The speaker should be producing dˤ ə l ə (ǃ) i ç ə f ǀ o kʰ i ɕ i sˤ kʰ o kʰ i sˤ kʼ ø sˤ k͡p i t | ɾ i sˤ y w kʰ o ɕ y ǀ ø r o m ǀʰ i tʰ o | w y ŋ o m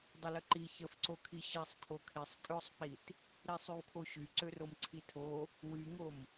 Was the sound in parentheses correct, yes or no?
yes